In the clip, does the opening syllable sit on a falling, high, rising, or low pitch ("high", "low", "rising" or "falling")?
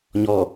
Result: low